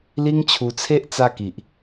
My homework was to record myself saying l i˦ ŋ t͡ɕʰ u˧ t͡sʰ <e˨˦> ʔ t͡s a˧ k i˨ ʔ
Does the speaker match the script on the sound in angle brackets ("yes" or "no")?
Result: no